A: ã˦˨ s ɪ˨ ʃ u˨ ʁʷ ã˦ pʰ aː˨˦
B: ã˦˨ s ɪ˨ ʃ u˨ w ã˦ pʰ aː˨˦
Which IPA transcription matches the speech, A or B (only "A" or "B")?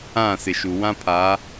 B